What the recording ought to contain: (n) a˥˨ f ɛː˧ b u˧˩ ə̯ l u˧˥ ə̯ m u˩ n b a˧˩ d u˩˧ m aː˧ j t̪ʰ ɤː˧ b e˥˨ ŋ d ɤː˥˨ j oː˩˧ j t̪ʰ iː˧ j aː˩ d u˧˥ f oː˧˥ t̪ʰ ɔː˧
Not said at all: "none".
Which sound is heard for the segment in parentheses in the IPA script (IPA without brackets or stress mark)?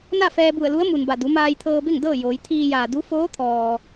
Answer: n